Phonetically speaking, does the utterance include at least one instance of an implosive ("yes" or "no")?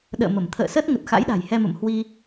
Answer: yes